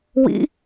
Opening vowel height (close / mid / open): close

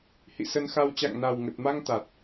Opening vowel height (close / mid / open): close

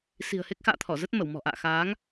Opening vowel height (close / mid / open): close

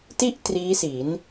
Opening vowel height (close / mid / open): close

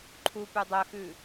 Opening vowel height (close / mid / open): close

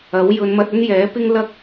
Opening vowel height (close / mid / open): open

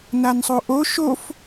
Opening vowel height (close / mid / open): open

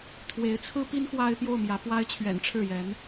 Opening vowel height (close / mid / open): mid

